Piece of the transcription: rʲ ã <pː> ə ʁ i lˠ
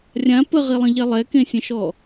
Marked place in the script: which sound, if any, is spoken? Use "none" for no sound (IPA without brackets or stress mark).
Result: p